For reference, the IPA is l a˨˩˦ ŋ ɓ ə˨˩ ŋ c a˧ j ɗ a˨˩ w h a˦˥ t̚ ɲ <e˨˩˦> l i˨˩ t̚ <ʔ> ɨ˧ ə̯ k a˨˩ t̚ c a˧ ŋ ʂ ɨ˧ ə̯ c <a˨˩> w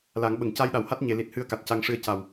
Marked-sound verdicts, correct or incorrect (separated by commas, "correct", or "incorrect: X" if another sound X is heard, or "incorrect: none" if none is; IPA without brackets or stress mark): correct, incorrect: h, correct